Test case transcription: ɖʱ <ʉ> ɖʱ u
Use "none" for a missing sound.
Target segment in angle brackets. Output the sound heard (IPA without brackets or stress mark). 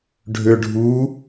ø